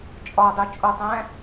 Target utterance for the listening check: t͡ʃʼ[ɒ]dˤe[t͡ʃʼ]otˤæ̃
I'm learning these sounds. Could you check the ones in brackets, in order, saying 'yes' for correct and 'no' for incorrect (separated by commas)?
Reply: yes, yes